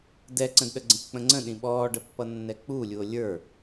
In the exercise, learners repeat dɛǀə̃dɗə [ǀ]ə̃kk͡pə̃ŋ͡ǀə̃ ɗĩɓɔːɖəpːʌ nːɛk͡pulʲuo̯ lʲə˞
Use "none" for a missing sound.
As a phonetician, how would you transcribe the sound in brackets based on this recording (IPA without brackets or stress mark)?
ɡ͡ǀ